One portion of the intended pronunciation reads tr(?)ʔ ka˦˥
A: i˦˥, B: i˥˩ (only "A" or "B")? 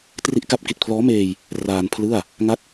B